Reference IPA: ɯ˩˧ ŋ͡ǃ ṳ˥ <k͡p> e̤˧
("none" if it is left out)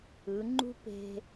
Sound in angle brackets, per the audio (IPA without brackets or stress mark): p